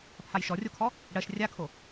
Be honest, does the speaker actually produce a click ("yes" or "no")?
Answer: no